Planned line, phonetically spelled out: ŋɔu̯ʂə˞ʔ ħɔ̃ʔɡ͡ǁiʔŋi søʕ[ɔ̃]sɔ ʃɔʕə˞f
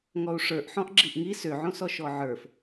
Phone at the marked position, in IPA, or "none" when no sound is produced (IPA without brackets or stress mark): õ